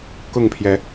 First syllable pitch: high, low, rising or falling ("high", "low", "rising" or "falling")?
falling